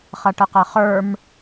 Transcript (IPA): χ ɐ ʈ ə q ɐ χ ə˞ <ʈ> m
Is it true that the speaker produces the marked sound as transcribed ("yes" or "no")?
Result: no